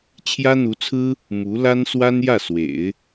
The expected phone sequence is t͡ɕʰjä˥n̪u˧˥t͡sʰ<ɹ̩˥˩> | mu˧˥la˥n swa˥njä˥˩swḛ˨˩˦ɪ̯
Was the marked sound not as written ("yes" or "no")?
yes